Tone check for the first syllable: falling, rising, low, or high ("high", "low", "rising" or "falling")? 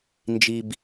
high